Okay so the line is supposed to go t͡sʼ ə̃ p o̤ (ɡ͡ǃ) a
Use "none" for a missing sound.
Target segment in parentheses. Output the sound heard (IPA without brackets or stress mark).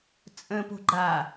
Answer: ɡ͡ǃ